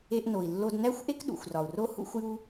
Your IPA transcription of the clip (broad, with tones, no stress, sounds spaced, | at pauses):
e˧ ʔ n o˩ i̯ lː o˧ d n æ˥ xʷ ʔ e˥ k ɗ ṵ˩ xʷ r ɒ˩ u̯ r o˥ h ṵ˥ xʷ j u˥